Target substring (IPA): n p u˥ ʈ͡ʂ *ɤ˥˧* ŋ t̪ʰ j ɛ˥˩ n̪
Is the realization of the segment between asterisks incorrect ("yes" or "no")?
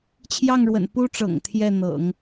yes